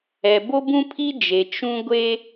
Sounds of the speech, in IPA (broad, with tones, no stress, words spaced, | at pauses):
ɛ˨ bo˦bũ˦pʰi˦ d͡ʒe˨ t͡ʃũ˦ ɡʷe˦